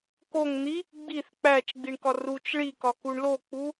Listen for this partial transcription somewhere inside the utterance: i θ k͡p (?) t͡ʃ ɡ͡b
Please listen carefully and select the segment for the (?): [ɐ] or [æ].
æ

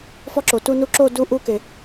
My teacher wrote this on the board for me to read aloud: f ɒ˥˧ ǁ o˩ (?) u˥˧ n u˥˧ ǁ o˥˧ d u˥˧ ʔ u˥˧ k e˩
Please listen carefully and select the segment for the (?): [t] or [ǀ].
t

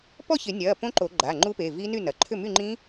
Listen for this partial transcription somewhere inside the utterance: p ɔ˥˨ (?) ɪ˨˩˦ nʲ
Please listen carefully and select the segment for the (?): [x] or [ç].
ç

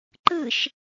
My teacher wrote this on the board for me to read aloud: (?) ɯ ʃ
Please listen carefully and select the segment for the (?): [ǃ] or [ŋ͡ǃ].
ǃ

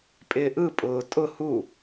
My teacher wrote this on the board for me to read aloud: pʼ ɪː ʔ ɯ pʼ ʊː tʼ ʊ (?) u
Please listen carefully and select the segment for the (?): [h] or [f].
h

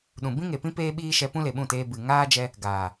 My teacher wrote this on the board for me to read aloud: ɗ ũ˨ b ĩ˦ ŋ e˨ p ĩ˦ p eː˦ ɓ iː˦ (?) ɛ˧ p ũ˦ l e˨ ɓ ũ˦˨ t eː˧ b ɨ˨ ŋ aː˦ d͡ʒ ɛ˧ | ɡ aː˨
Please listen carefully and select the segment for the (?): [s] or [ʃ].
ʃ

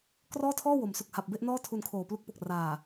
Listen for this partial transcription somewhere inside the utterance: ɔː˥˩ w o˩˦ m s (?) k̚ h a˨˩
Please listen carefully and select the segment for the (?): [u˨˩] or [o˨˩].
u˨˩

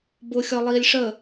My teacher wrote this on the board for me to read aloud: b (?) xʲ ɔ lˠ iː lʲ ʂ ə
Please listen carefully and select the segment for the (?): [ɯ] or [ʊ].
ʊ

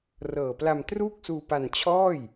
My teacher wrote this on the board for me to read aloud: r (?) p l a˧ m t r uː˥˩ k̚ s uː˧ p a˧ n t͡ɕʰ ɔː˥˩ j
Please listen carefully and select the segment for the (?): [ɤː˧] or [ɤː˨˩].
ɤː˨˩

